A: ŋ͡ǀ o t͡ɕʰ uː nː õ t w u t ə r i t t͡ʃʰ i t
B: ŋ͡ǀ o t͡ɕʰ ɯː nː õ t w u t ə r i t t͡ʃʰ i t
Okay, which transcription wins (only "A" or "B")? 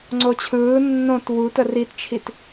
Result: B